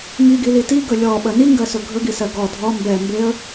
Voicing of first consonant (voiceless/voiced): voiced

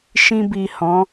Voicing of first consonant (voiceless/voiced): voiceless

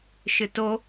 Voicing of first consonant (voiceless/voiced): voiceless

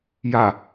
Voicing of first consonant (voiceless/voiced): voiced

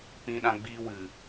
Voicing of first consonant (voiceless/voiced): voiceless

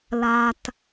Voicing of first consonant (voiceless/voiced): voiced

